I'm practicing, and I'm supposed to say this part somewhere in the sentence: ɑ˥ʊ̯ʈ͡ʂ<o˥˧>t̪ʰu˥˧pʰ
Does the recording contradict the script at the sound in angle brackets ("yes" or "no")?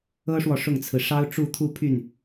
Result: yes